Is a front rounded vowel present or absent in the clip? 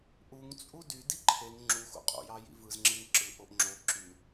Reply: present